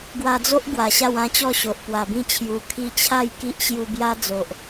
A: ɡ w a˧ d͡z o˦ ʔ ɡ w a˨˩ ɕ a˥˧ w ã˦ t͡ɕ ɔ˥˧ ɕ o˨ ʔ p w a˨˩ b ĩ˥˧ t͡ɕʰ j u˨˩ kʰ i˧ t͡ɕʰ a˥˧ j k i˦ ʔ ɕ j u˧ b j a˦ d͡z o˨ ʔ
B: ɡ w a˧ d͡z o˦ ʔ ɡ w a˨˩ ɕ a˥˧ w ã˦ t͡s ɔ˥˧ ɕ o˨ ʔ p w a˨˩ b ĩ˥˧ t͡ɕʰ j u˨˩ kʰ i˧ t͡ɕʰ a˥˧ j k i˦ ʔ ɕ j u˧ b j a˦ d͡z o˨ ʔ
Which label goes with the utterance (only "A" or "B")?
A